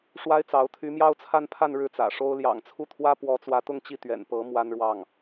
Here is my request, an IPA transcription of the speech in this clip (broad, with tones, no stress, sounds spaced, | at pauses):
ʂ w a˥ ɪ̯ t͡s ɑ˧˥ ʊ̯ t̪ʰ y˧˥ m j ɑ˥ ʊ̯ t͡sʰ a˥˧ n pʰ a˥˧ n ɻ ɻ̩˥˩ t͡s ä̰˨˩ ʂ o˥ ʊ̯ l j ɑ̰˨˩ ŋ t͡sʰ u˥˩ t̪ʰ w ä˥ p w ɔ˧˥ t͡s w ä˧˥ t̪ ʊ˥˧ ŋ t͡ɕ i˥˩ t̪ ɥ ɛ̰˨˩ n p ɤ˧˥ m w a˥ n ɻ w ɑ˥˩ ŋ